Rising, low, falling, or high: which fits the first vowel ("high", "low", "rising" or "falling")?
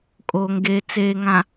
low